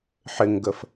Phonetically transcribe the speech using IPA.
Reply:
ħɪŋɡəf

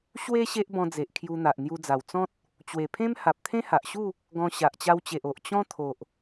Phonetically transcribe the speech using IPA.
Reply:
ɕwe˦ ɕe˦ʔbɔ̃˧d͡ze˨ʔ kʰju˧n̪a˨ʔn̪ju˧d͡za˨˩w t͡sɔ̃˦t̚ | t͡ɕwe˨˩pʰẽ˦m ha˨p̚t̪ʰẽ˦ha˨ʔɕu˥˧ | ɡɔ̃˧ ɕa˨ʔt͡ɕa˧wt͡ɕe˨ʔ o˨ʔt͡ɕɔ̃˦ t̪ʰo˨ʔ

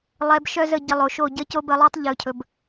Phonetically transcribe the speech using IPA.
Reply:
lˠɛ˧bʃœ˦zə˧ ɟə˧lˠo˨ʃo˦˨ ɟə˦ co˦bə˧lˠo˦tˤ ʎɵ˨cʰɵ˨b

